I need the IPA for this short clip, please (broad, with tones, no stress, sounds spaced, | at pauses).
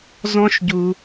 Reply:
z ɔ̃˥ ʃ ɟ u˥